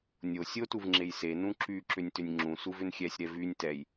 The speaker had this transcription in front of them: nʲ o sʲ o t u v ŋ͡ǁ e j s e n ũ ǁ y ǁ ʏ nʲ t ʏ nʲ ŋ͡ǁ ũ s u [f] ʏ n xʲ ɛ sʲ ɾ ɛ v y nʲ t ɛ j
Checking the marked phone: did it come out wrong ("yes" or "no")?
yes